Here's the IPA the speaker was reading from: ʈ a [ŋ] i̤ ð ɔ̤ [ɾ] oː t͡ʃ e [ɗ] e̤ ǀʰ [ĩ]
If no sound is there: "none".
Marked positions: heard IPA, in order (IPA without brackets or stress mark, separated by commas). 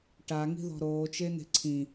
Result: ŋ, ɾ, n̪, ĩ